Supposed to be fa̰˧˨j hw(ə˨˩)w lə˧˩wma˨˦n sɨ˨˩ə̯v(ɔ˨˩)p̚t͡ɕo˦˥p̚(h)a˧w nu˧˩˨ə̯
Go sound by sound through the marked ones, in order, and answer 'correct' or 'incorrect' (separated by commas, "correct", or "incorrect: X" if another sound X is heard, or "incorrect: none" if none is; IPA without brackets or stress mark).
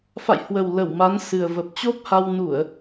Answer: correct, incorrect: ə˨˩, correct